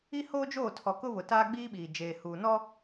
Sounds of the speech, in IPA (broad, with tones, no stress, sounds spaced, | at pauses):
i˦ h oː˦ d͡ʒ oː˦˨ tʰ ɔ˨ k ʊ˦ β ʊ˨ t aː˦ ɡ͡b iː˦ ɓ iː˨ d͡ʒ eː˨ h uː˨ n ɔ˦